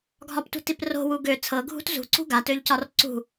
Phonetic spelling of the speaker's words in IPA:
ɡʱ ɒ p t ṳ t i p r o̤ w u ɡ ø t͡sʰ ɤ ɡʱ ṳ t z ṳ ǀ ṳ ɡ a t ø ʎ c ɒ r ǀ ṳ

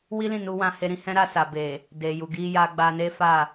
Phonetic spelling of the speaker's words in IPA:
w i˦ l ĩ˦˨ n u˧ w ã˧ h e˧ ɾ ĩ˧ h ɛ̃˦ ɾ a˧ s a˨ b e˨ | d e˨ j u˨ ɡ i˧ j a˧ ɡ͡b a˧ n e˦ f a˦˨

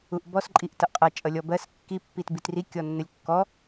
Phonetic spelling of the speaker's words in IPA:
u ʔ b ɔ s ǃʼ i ʔ t ʌ ʔ qʼ ʌ t͡ʃʼ ʌ lʲ ɔ b ɜ s kː i pː i t b i t r i kʲ ɔ nː ə lʲ kː ɔ

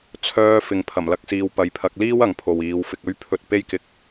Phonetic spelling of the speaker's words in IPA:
t͡sʰ œː˧ f ɪ˨ ŋ pʰ ɐ˨˩ m l ɐ˥ k̚ s iː˧ w p ɐ˨ j pʰ ɐ˨˥ k̚ l iː˥ w ɐ˨˧ ŋ pʰ o˨ w iː˨˧ w f ɪ˧ k̚ ɵ˥ ɥ pʰ ɵ˧ t̚ p e˥ j k ɪ˧ k̚

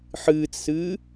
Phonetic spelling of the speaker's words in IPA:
ħ ɨː t͡s s ɨː

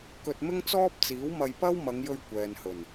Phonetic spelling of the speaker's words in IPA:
k ɵ˧ t̚ m ɪ˥ ŋ t͡s ɔː˥ p̚ t͡s iː˨˥ w m ɐ˧ j p ɐ˥ w m ɐ˨˧ ŋ j ɵ˧ ɥ kʷ ɛː˨ n h ɵ˨˩ n

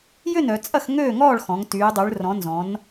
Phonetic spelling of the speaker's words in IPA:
j ʏ˥˨ n œ˩˧ t͡sʼ ɐ˥˨ x ŋ øː˥˨ ŋ ɔː˥˨ ɭ x ɔ̃˩˧ ŋ t yː˩˧ dˤ y˩˧ ɭ r ɔ̃˩˧ n z ɔ̃˩˧ n

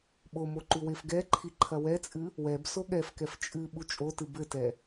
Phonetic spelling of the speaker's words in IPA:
ɓ o m o ǃ u w e f ɡ ɛ ǃʰ i ǃʰ ɐ w ɛ t͡sʼ ɨ | w ɛ b s o ɠ ɛ f k ɛ f t͡ʃʼ ɨ ɓ u t͡ʃʼ o t ɨ b ɘ t ɛ

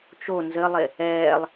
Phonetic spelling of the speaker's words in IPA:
t͡ʃ o n z ɘ lˠ e | ɛː lˠ

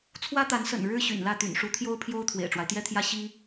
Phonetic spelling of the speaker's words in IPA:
t͡sʰ w ä˥ t̪ a˧˥ n s ə̰˨˩ n ɻ ɻ̩˥ ɕ y̰˨˩ n l ä˥˩ t̪ y̰˨˩ n ʂ u˧˥ t̪ʰ j o˥ ʊ̯ pʰ j o˥ ʊ̯ t̪ʰ w ḛ˨˩ ɪ̯ ʈ͡ʂ w a˦ ɪ̯ t̪ j ɛ˥ t̪ʰ j ä˥ ɕ i˥

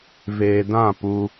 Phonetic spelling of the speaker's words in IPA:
v eː˨ d ã˦˨ p u˦

